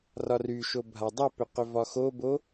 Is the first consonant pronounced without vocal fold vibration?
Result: no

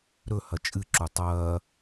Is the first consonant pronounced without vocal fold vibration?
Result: no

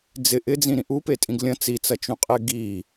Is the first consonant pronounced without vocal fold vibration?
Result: no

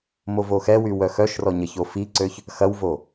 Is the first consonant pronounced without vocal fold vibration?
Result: no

